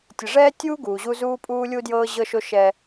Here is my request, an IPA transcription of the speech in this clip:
tʲɘ˨ʐɛː˦tʲuː˦ ɡuː˨ʑu˦zuː˦ pʼuː˦lʲu˦ djɤː˦ʑɤ˦ʃo˦ ʃɛ˦

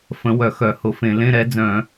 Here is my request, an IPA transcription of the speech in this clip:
fə̃˨˦ wœ˧˩˧xœ˧˩˧ hʊ˧˩˧fẽ˧˩˧ lẽ˧˥˧ ɾɛ˨˦d͡zœ̃˧˩˧

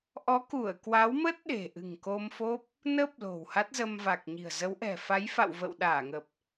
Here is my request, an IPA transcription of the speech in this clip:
ʔɔ˨˦ku˧˩ə̯kwa˨˦wmə˦˥t̚ ɗe̤˨˩ʔɨ̤˨˩ŋ ko˧mfo˦˥p̚ | nə˦˥p̚ lo̤˨˩wha˦˥t̚zə˧m va˨˩k̚ɲi̤˨˩ə̯ zə˨˦wʔɛ̤˨˩ fa˨˦jfa̰˧˨wvə̰ː˧˨w ɗaː˧˩ŋə˨˩p̚

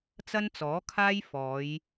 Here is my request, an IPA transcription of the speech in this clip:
t͡sɐ˥nt͡sɔː˨˥kʰaː˥j fɔː˨˧j

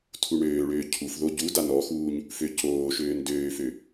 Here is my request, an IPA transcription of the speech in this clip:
tʰuɳøːɭøː cʰufðo ɟuda nɔxuːɲ | føcoːʃøːn døːfø

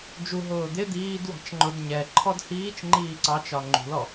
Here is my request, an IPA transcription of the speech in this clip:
d͡ʒuɦʊː d̪ɪ d̪iːd wɑ̤t͡ʃŋ͡ǃʊd ɲɛ ǃʰɔdhiːt͡ʃ ŋ͡ǃiːǀɑt͡ʃɒ ŋ͡ǃṳlɔ

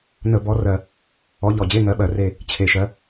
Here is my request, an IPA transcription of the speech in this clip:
nə˧˩˧bɔ˨˦rɜ˨˩ | ɔ˨˦ ʎɔ˨˩d͡ʑe˧˥˧ŋɜ˨˦ɓɜ˨˩ re˦˨ | t͡ɕʰe˨˩ʃɜ˨˦

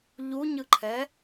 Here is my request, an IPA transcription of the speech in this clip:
ʎuɲɯǃʰɛ

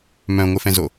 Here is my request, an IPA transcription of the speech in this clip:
mœ̃ŋʷɪfɛ̃zo

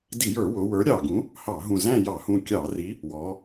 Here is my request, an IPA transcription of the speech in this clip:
di˧˩˧jə˞˧˩˧wʊ˩˧ wə˞˨˥ɾʲɑ˧˩ɡũ˨˥ | hɑ˧˩˧ɦũ˧˩zæ̃˥˧ jɑ˧˩˧hũ˧˩ kʲɑ˧˩˧ri˨˥ | wɔ˩˧

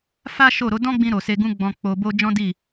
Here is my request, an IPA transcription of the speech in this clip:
fa˦ʃo˦˨ɾo˨˦ dɔ̃˦ɡ͡bĩ˧ ɾo˨se˧ɡũ˦ɡ͡bɔ̃˧ k͡po˧bo˦ d͡ʒɔ̃˦di˦˨

